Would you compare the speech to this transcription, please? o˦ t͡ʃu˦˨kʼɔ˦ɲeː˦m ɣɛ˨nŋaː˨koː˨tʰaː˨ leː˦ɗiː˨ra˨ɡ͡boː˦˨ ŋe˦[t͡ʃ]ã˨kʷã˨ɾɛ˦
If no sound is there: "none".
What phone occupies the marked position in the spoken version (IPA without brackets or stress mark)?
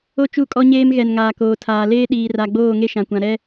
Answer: ʃ